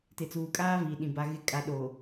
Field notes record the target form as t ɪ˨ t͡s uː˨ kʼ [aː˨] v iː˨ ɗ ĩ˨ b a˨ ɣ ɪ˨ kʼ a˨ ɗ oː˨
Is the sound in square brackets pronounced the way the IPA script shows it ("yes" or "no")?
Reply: no